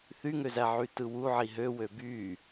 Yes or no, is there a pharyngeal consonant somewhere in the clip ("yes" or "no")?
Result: yes